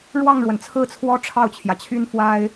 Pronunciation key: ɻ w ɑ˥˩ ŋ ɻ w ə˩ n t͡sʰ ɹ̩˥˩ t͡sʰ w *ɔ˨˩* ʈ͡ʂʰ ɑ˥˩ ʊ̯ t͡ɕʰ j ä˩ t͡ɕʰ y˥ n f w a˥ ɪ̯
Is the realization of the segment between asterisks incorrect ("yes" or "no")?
yes